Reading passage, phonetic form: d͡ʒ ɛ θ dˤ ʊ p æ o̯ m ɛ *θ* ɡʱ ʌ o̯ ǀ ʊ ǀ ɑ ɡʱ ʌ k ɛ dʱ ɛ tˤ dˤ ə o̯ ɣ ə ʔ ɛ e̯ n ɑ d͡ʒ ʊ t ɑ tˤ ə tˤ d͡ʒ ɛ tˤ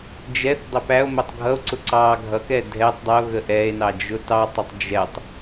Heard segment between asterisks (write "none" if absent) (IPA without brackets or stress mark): tˤ